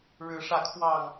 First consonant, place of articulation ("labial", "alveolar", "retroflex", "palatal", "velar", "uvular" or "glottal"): retroflex